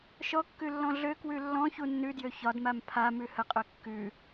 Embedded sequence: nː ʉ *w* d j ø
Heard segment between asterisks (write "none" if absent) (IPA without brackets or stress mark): none